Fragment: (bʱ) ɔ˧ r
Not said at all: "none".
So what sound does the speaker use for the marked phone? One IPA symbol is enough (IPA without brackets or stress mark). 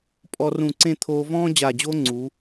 pʼ